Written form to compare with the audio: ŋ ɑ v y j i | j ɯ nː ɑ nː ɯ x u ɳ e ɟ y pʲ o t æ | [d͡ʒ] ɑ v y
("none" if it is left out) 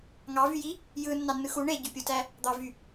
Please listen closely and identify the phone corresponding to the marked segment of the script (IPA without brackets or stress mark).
d̪